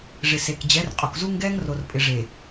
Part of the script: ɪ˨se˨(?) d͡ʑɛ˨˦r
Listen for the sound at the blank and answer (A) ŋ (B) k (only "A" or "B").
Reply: B